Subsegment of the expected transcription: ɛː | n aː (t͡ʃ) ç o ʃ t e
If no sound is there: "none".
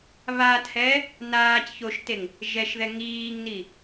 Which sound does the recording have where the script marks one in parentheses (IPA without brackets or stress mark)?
c